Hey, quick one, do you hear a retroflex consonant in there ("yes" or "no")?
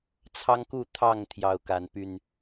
no